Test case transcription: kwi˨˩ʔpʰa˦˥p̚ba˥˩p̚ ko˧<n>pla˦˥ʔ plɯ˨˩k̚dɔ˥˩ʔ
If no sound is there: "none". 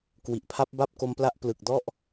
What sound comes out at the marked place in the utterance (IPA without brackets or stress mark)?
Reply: m